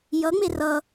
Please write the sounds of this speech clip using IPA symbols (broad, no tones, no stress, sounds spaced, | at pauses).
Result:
j ʌ ŋ͡m e r ʌ